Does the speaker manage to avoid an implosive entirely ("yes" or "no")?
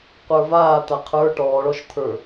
yes